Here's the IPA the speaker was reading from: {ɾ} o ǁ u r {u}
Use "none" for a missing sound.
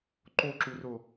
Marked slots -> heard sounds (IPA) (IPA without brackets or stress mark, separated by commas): ǃ, ʊ